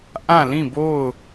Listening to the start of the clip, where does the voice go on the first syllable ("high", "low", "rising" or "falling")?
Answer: falling